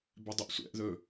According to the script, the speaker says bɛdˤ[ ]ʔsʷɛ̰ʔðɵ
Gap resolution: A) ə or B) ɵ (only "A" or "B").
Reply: A